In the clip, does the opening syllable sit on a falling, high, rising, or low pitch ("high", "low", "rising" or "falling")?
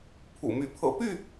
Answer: low